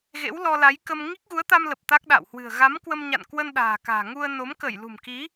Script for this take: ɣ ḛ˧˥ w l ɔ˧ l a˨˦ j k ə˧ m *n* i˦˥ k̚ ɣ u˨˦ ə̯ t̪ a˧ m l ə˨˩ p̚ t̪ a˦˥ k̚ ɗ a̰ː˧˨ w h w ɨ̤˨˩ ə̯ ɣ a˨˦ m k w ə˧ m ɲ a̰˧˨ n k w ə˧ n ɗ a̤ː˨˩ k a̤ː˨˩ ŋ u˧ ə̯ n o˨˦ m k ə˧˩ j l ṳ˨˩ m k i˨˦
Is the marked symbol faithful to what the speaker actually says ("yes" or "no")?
no